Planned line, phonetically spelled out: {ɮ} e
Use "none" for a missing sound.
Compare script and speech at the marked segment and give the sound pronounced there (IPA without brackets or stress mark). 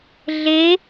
ɮ